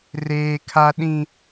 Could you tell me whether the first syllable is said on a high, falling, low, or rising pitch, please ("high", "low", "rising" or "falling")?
high